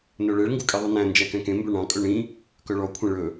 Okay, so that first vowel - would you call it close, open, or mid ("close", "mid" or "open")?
mid